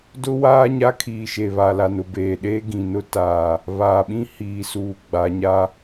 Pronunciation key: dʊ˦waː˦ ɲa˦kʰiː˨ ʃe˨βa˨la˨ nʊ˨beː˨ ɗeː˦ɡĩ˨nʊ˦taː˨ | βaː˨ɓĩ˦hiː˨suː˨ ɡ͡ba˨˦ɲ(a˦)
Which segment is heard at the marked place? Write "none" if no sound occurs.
a˦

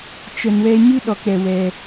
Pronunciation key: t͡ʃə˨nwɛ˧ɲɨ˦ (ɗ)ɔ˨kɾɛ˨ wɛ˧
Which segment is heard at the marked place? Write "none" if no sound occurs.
ɗ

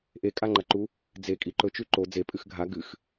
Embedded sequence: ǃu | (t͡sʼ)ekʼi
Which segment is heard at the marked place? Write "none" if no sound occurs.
d͡z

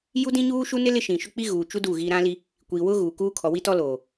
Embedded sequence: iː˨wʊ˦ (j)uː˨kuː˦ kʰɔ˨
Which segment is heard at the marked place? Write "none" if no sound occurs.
ɣ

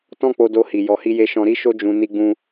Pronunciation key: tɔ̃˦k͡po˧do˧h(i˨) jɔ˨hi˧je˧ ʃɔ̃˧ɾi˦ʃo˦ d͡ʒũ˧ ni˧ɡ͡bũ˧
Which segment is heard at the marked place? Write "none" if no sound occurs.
i˨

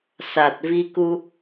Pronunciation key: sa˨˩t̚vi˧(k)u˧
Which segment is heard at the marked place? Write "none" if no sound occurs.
k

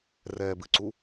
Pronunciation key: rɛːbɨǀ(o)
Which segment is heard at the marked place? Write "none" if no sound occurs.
u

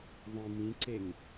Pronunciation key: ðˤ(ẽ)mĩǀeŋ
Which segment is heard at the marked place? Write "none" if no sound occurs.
ĩ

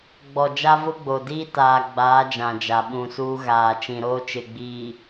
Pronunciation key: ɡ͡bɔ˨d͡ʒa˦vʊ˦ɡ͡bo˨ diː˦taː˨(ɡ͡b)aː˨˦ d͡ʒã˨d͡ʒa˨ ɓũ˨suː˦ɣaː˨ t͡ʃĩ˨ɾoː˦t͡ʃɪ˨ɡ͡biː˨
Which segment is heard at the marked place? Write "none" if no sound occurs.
ɡ͡b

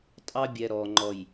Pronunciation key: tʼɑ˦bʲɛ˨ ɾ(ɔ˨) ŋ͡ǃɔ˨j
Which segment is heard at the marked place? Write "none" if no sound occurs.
ɔ˨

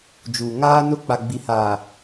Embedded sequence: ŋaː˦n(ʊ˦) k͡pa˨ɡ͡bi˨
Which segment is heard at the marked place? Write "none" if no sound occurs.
ʊ˦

